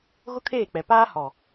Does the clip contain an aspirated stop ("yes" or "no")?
yes